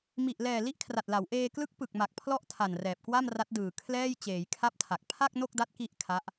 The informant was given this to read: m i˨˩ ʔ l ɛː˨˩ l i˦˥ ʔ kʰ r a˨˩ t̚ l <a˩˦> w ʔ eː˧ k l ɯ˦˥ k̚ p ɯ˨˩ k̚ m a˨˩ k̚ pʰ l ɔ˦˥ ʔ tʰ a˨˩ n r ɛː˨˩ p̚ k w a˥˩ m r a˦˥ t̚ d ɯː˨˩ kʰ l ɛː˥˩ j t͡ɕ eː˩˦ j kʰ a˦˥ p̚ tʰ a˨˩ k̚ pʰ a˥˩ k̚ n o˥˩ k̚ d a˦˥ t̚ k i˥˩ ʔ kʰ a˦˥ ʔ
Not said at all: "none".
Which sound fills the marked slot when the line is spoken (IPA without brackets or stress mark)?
a˩˦